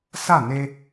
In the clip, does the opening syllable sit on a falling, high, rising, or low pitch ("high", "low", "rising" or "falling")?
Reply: falling